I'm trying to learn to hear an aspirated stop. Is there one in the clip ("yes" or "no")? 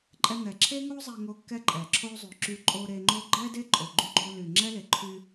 yes